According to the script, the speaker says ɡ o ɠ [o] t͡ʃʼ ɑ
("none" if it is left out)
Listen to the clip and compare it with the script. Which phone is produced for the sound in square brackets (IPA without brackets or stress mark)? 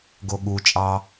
u